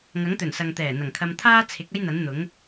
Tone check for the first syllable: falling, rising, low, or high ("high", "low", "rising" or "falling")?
rising